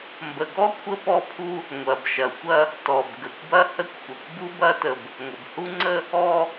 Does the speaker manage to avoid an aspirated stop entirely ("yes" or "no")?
no